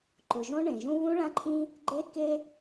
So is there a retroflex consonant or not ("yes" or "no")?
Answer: yes